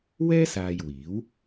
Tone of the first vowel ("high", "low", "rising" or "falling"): high